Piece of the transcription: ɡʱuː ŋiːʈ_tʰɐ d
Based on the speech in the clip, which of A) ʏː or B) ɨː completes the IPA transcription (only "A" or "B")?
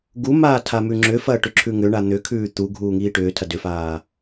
A